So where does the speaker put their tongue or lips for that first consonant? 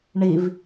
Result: retroflex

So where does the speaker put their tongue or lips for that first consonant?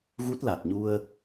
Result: velum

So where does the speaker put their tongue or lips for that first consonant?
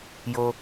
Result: palate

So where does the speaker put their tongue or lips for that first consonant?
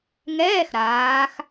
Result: velum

